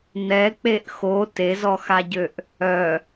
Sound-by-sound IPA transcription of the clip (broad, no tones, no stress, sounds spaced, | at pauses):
n ɛ k͡p e ʔ x o t e z ɔ x a ɟ ø ʔ | œ